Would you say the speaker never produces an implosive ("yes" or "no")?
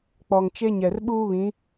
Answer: no